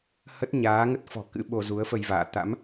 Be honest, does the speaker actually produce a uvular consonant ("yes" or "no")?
no